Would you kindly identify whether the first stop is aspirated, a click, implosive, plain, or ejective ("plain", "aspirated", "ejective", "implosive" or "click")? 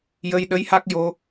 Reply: implosive